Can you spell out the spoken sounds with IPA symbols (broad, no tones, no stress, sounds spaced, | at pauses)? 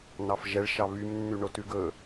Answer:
n ɑ f ʒ ɛ ɭ ʃ ɑ β y m nː y ɳ o t ʉ ɡ ɵ